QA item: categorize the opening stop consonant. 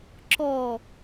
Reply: click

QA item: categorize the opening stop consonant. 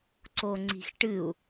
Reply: click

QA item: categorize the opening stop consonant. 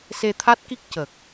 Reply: aspirated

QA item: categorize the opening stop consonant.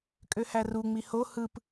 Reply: ejective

